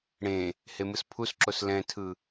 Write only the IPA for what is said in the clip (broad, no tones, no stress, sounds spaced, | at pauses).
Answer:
ɽ ẽ | h e m ɯ s pʰ u s ǁ o s l ɛ̃ tʰ ɯ